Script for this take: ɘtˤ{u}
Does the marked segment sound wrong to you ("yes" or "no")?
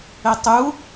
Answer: no